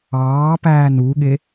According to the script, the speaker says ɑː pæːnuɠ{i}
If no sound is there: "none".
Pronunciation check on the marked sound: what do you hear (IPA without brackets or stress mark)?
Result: e